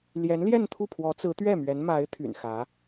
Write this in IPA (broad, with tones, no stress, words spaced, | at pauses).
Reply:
ljɛ˧˥nljɛ˥˧nt̪ʰu˥˩ pʰwɔ˧˥t͡sɹ̩˧˥t̪ɥɛ˥˩mɥɛ˧˥n ma˧˥ɪ̯ t̪ʰy̰˨˩n xä˧˥